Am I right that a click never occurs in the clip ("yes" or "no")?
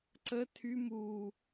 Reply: no